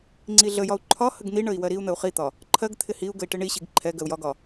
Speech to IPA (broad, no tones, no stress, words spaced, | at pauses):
ŋ͡ǀiɮəjɒu̯ ǃʰɒ həɡn̪iɳəi̯ wɜɾiu̯n̪əu̯ χit̪ɒ | ǃʰɜɡt̪ʰɪ hiu̯ ɡəi̯ʈɪɳiɕiɡ ǃʰɛ ɡɜu̯jɒɡɒ